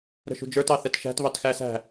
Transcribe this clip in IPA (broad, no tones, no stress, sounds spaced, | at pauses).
ɾ ə̤ ʃ ṳ d͡ʒ ə˞ t ɑ θ ɛ t ʃ æ̤ t β ɑ t x æ s æ̤